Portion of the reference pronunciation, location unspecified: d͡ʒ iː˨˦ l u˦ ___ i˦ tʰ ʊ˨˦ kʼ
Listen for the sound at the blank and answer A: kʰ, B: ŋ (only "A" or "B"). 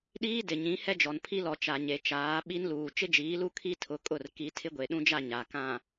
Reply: A